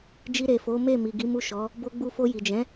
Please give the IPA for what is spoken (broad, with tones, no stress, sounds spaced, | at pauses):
d͡ʒ i˧ ɾ e˨ f o˨˦ m e˦˨ m i˨ ɡ i˨˦ m u˦˨ ʃ ɔ˨˦ | b o˧ ɡ͡b u˧ f o˧ j i˨ d͡ʒ ɛ̃˨˦